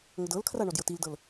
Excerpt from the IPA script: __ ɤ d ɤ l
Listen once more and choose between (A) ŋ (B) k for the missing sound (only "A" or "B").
A